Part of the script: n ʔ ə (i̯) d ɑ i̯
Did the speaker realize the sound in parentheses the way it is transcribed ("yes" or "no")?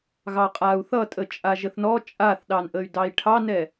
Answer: no